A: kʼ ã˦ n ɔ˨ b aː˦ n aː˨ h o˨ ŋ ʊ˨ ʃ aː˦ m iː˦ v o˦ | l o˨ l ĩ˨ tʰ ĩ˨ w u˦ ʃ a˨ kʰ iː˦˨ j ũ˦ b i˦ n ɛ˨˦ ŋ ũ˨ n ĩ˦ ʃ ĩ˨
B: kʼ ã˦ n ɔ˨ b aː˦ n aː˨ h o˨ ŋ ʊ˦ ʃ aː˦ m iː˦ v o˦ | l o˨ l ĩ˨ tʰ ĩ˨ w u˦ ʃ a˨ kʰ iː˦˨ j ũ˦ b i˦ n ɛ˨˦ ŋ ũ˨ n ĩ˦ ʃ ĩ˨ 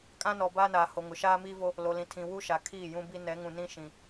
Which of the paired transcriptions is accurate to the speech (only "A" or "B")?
A